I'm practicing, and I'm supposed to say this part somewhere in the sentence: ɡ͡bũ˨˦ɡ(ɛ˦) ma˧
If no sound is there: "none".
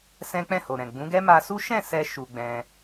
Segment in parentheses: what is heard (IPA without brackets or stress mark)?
ɛ˦